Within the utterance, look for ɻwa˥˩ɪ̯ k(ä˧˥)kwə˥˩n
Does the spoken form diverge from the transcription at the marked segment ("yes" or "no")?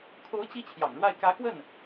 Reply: no